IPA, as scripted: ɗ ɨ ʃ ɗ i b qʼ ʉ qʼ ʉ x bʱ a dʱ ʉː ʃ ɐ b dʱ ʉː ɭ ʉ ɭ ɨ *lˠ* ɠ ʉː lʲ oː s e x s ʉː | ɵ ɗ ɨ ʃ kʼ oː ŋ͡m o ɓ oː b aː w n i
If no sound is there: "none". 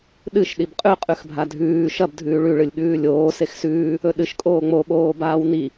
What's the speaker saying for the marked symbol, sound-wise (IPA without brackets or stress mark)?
lʲ